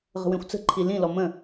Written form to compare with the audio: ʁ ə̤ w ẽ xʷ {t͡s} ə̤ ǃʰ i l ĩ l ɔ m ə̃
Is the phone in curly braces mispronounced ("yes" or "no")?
no